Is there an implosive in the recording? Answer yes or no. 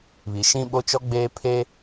yes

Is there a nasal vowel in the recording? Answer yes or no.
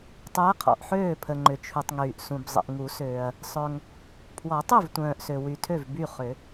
yes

